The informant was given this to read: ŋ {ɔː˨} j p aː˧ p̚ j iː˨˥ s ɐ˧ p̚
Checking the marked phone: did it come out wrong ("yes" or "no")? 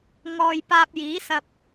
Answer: no